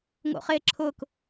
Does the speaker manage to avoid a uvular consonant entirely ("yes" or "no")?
no